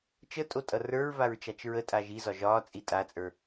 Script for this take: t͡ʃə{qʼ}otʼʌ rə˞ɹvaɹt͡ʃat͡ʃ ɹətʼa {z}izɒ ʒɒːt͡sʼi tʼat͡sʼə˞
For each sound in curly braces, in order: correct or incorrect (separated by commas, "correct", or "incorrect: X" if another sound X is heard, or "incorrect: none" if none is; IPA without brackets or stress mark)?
incorrect: tʼ, incorrect: ʒ